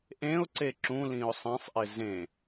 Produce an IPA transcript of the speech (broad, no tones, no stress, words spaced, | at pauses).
ʔẽʊ̯ǀe ǁũ lĩʊ̯sˤẽsˤʔɪ zẽ